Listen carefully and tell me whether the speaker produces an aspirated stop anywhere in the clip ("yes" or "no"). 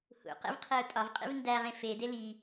yes